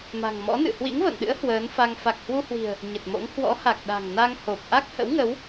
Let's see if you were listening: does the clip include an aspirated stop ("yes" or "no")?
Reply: no